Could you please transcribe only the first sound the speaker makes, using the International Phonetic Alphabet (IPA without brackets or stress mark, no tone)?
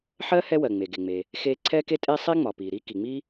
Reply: ħ